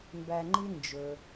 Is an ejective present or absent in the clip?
absent